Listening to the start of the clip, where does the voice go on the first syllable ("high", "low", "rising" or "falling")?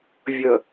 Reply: low